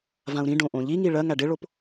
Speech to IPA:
vãu̯ɾĩ ɖõʔõʎiŋi ɭɜ ŋæɖɪɭop

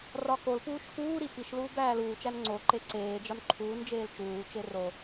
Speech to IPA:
rɒkolpuːʃ kuːɾi piʃluːb æːluːt͡ʃæn ŋ͡ǀo ǃeǀeːd͡ʒɒn ǃʰuːnd͡ʒeːl t͡ʃuːt͡ʃe ro

